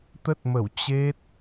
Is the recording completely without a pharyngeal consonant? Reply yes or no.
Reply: yes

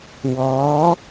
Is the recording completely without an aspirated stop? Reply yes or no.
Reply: yes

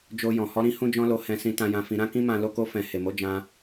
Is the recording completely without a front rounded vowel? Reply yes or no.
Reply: yes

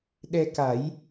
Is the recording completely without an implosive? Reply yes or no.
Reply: no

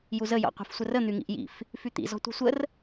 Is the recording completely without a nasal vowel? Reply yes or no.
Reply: yes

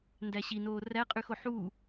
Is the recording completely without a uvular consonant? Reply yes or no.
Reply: no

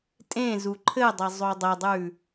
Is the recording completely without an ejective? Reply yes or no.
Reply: no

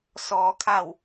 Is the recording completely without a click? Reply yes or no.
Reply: yes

